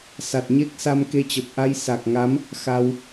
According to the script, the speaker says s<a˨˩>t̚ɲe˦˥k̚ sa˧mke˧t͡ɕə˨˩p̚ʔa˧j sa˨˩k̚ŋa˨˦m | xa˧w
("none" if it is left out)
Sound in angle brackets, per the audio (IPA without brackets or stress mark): a˨˩